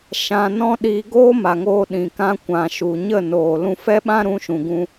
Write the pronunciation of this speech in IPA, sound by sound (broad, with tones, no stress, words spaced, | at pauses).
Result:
ʃã˧nɔ̃˦ ɗiː˧ɡoː˦ma˨ŋoː˧ ɗĩ˨kã˧ kʷã˨ ʃu˨ɲə˦˨noː˨ lũ˧fɛ˦ɓã˦ ɾũ˧ʃũ˨ɡũ˧